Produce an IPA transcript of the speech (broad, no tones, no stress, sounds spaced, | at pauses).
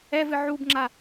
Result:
ɛ v ɨ ʕ u b ŋ͡ǁ a